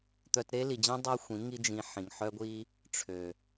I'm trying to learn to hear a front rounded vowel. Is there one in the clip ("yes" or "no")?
yes